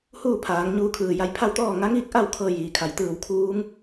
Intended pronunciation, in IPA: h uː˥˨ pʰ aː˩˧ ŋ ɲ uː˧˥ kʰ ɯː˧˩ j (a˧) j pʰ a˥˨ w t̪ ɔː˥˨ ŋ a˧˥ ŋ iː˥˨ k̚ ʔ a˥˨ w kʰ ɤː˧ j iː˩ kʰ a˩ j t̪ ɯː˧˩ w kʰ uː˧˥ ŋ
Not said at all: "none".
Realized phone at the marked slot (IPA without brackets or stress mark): a˧